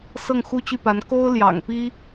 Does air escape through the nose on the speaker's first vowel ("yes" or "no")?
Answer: no